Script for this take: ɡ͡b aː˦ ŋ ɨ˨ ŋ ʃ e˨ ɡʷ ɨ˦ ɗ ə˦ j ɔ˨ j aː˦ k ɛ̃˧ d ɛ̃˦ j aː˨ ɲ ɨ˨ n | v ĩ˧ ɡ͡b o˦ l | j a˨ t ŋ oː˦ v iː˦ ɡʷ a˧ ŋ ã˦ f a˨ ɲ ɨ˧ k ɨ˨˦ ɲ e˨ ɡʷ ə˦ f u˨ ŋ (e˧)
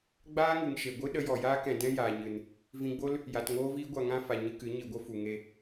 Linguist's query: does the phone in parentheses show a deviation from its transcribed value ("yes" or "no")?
no